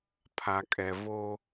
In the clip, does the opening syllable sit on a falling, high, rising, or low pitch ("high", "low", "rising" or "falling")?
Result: low